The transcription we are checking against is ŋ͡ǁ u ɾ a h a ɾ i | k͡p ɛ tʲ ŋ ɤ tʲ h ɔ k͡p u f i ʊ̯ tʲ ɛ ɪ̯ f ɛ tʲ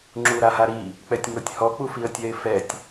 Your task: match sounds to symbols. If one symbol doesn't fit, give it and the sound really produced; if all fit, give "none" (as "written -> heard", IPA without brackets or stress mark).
ʊ̯ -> ə̯